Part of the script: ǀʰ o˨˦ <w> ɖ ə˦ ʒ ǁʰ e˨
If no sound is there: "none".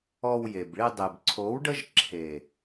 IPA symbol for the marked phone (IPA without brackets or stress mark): w